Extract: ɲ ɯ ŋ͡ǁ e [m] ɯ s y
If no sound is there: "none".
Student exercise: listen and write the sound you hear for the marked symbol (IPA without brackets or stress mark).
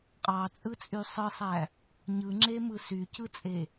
m